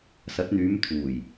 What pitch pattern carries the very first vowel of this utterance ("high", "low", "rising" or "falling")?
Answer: rising